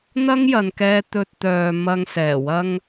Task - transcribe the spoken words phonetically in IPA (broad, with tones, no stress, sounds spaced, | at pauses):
n̪ ɐ˥ ŋ j ɐ˨˧ n k ɛː˧ t̪ ɵ˧ t̚ t̪ œː˨ m ɐ˧ ŋ s ɛː˨˩ w ɐ˧ ŋ